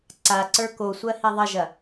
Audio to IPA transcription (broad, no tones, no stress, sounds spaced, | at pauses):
ǀ a ǀ ə˞ k o sʷ ɜ h i ðˤ ə ʒ ɐ